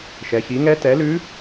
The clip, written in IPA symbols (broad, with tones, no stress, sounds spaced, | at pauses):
ʃ ɛ˩˧ ç i˩˥ ŋ ɛ˧˥ t ɛ˩˥ l ʉ˧˥